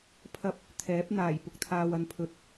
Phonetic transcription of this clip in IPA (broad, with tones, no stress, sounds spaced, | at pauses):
pʰ ɐ˥ p̚ | t̪ʰ ɛː˨˥ p̚ n̪ aː˨˩ j p ʊ˧ k̚ t̪ʰ aː˨ w ɐ˨ n pʰ ɵ˨˥ t̚